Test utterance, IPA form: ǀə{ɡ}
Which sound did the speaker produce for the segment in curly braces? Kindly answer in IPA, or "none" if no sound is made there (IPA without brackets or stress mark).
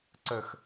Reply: x